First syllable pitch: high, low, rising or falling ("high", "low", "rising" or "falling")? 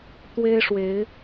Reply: high